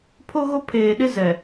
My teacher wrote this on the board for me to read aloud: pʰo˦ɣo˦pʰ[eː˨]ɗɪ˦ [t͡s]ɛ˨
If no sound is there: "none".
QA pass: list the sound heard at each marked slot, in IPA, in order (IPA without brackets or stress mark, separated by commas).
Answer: eː˨, z